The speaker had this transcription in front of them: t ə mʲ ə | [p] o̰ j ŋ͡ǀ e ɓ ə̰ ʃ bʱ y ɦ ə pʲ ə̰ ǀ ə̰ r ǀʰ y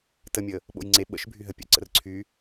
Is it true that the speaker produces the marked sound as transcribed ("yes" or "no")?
no